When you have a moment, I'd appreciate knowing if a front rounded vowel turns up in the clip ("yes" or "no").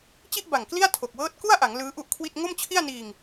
no